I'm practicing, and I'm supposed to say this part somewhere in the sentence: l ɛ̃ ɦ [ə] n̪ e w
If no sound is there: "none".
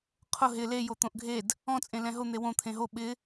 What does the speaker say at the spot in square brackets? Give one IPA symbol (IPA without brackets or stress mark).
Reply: ʊ